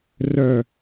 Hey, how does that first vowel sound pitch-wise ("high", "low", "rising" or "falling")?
low